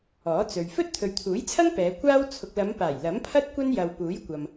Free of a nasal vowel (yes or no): yes